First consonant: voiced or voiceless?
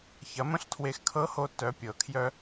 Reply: voiceless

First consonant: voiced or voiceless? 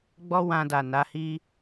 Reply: voiced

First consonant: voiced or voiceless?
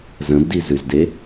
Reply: voiced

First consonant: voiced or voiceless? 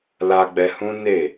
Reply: voiced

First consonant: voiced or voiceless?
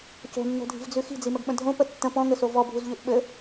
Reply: voiceless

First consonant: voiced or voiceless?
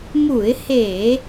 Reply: voiced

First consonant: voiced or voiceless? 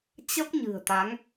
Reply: voiceless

